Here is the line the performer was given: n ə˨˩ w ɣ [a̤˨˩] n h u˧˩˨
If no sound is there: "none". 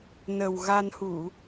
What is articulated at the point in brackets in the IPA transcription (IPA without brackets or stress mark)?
a˧